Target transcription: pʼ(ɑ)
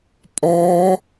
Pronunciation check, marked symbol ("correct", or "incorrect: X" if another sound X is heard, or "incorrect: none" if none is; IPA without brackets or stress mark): incorrect: ɔ